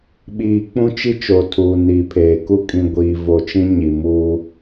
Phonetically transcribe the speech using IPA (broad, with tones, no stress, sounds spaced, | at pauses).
ɓ iː˨ k͡p ũ˦ t͡ʃ i˦ t͡ʃ o˨ tʰ uː˨ n iː˨ pʰ eː˨ k u˦ kʼ ĩ˨ ɡʷ iː˨ v o˨ t͡ʃ ĩ˦ ɲ i˨ m uː˦